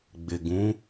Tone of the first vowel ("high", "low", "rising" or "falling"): low